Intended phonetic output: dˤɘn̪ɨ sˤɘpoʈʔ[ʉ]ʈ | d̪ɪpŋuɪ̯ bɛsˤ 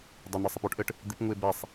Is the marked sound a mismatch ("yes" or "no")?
yes